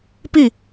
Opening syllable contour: falling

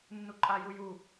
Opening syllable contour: high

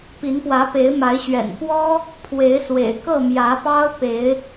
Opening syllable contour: rising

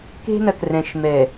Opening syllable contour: high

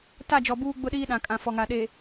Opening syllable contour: falling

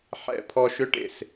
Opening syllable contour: falling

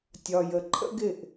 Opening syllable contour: low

